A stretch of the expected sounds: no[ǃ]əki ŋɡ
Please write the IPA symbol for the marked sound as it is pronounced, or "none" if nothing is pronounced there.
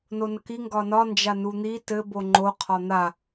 n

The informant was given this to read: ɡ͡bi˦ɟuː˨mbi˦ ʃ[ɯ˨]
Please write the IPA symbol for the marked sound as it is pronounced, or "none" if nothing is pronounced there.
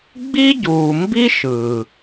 ɯ˨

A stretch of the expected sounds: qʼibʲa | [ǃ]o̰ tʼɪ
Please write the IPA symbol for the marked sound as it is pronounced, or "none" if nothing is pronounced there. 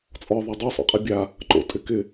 ǃ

